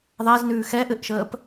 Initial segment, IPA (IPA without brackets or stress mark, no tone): ðˤ